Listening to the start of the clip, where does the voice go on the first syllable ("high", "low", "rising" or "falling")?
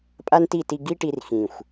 high